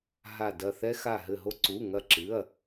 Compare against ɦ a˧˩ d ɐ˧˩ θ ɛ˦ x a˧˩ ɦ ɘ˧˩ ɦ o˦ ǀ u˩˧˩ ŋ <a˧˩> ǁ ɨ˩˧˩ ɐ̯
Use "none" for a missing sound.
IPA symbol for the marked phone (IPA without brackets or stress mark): ɐ˧˩